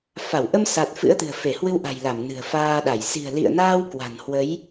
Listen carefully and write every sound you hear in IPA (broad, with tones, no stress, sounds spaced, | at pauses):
f a˧˩ w ʔ ə˧ m s a˨˩ t̚ f ɨ̰˧˥ ə̯ t̪ ɨ̤˨˩ ə̯ f e˧˩ h w ɨ˧ w ʔ a̤˨˩ j l a˧˩ m n ɨ̤˨˩ ə̯ f aː˧ ɗ a˧˩ j s i̤˨˩ ə̯ l ḭ˧˨ ə̯ n aː˧ w k w a̤˨˩ n h w ə˨˦ j